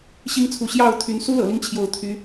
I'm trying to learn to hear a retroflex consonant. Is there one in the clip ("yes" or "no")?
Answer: no